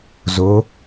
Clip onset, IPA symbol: z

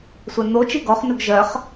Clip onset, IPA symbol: sʷ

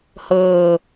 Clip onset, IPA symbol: h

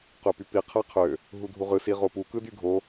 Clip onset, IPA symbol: q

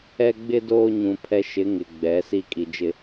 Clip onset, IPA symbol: ɛ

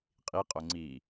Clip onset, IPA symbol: qʼ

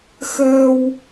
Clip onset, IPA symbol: x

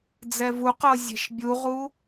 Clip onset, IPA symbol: d͡z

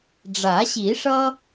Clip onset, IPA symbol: ɖ͡ʐ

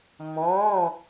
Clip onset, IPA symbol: m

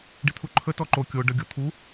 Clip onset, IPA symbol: ɖ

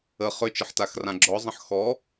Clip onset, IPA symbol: ə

